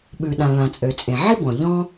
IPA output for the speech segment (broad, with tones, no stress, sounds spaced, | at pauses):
ɓ ʉ˩ ɗ ã˩ ɭ ã˩ t͡sʼ ø˩ t͡sʼ ẽ˩ ʕ i˥ b ɔ̃˩ ʎ ɔ̃˥